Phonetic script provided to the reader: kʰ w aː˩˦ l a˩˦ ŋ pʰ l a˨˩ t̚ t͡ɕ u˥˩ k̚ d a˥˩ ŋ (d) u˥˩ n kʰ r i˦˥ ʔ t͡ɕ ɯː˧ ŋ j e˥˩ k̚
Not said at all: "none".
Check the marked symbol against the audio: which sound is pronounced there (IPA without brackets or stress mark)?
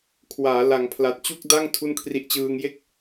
tʰ